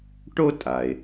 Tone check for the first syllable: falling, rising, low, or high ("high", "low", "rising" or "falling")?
high